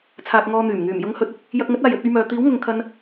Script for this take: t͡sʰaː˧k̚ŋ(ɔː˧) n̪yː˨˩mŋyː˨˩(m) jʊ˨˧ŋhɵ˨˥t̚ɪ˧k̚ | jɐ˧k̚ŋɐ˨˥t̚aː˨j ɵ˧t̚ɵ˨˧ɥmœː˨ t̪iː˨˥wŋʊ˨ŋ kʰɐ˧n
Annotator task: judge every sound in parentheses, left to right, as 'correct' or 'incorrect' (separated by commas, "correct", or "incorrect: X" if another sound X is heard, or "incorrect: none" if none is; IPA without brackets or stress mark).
correct, correct